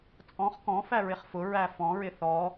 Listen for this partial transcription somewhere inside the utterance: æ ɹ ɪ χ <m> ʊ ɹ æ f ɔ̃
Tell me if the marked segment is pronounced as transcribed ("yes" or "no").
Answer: no